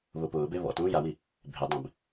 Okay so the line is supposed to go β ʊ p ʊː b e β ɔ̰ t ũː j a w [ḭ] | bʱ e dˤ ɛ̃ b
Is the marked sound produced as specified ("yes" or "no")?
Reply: no